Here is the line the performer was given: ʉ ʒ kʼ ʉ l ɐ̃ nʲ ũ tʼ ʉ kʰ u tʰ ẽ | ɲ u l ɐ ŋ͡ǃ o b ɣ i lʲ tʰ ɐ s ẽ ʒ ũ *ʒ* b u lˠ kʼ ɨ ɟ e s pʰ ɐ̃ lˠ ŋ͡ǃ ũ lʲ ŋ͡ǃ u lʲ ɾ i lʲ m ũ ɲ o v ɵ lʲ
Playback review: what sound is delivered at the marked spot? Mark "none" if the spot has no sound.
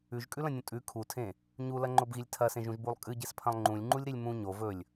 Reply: ʒ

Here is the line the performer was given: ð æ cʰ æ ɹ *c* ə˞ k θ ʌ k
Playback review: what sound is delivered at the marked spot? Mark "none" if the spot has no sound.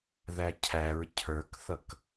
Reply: cʰ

